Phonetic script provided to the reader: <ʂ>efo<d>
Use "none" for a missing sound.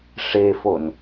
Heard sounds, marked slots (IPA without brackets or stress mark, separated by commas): ʂ, n